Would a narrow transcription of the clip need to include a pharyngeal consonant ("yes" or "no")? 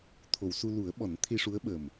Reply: no